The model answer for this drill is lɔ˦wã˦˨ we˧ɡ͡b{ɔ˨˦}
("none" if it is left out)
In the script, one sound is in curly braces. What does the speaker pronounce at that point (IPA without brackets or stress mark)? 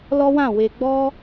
ɔ˦